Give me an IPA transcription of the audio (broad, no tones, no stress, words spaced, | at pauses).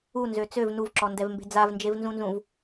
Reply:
unzø t͡søv nuvǁɔndɛvmbe̤ d͡zavnd͡ʒevnzũnzũv